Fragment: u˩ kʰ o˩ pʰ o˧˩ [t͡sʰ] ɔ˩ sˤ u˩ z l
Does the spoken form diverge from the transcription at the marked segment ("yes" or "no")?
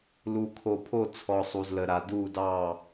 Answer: no